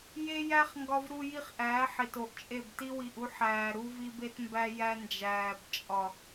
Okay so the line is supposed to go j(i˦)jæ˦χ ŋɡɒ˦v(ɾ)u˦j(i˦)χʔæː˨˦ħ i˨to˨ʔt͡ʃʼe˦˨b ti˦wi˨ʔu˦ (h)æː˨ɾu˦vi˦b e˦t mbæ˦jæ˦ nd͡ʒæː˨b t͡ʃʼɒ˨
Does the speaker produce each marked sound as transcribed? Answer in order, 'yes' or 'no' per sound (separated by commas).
no, yes, yes, no